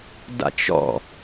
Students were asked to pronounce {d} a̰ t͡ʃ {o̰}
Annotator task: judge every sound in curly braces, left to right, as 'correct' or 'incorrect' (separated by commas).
correct, incorrect